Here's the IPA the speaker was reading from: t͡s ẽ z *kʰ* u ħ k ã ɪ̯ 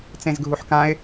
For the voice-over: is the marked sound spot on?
no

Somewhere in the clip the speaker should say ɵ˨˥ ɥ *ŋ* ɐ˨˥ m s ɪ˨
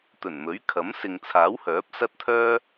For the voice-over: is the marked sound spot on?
no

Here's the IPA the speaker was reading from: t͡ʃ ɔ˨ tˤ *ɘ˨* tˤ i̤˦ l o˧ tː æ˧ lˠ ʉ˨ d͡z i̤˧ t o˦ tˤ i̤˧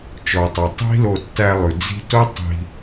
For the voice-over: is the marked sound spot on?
yes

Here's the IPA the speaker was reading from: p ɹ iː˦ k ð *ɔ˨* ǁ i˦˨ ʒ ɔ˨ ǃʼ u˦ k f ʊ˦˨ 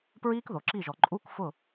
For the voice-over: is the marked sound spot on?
no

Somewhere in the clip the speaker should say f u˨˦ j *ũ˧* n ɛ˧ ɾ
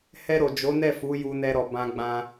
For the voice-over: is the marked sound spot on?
no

